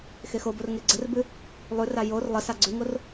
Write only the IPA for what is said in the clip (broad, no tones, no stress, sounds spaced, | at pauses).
x e x o b o r ŋ e ɡ͡ǀ ə r b ʉ | lˠ ʉ r a j o r lˠ ə s a ɡ͡ǀ ʉ ŋ o r